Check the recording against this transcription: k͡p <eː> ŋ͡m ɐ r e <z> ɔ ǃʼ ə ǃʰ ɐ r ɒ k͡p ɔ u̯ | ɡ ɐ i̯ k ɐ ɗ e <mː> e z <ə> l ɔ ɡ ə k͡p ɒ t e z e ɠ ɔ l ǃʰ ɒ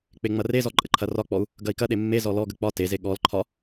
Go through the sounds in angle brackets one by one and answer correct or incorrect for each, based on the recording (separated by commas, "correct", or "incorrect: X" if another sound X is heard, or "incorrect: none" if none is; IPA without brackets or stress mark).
incorrect: e, correct, correct, incorrect: ɔ